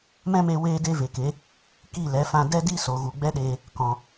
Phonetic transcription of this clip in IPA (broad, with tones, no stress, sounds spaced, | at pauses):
m ɛ̃˦ m e˧ w eː˦ d e˦ v e˨ k e˨˦ | k i˦˨ l ɛ˨˦ f ã˧ d ɛ˦ d i˦ s o˨ ɣ u˨ ɡ͡b ɛ˦ ɗ eː˧ | k ɔ̃˨